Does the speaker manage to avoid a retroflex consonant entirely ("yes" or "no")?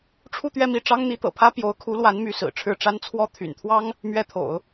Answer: no